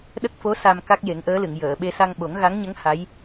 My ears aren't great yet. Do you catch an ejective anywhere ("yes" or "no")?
no